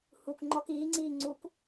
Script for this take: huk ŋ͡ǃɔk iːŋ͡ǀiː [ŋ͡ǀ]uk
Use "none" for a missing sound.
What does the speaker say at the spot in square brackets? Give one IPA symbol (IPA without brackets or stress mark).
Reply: ŋ͡ǀ